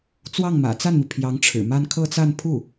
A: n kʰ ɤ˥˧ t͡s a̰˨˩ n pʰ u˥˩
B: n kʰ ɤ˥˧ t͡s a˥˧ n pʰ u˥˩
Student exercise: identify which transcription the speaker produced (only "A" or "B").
B